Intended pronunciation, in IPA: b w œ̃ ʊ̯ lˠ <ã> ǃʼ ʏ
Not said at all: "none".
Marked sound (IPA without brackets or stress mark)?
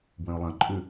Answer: ɐ̃